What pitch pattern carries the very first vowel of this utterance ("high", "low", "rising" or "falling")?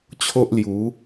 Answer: high